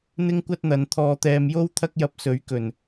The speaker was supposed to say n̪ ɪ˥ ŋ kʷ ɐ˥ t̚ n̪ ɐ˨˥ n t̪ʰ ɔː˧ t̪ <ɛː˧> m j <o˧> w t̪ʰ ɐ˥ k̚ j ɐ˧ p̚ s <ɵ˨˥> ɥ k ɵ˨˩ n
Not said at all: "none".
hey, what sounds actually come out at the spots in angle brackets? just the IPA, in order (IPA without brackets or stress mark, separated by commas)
ɛː˧, o˥, ɵ˨˥